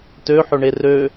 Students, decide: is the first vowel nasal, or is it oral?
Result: oral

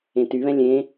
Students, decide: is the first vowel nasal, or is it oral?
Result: nasal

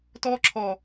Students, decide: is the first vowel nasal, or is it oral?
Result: oral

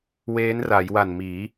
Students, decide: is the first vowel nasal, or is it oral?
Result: oral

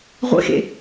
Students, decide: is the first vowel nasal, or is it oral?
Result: oral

